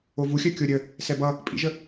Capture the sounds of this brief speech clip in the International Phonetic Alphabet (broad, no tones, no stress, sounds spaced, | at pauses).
o v u xʲ œ kʲ o ɾʲ ə | s ɛ b ʌ | pʼ ḭ ʒ ə